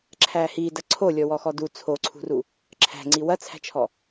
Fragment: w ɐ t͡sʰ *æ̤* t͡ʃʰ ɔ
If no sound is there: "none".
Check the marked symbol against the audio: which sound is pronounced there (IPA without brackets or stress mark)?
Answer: æ̤